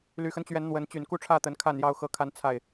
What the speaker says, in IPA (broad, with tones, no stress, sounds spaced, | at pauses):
l y˨˩ x ə˦ n t͡ɕ ɥ ɛ˨˦ n n̪ w ə˨˦ n t͡ɕ y˨˩ n k u˥˨ ʈ͡ʂʰ ä˥˨ t̪ ə˨˦ n kʰ a˥˨ n j ɑ˥˨ ʊ̯ x ɤ˦ kʰ a˦ n t͡sʰ a˥˨ ɪ̯